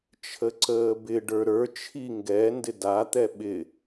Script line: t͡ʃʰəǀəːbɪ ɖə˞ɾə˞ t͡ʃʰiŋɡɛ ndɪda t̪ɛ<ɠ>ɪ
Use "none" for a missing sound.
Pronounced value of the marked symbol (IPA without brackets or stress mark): ɓ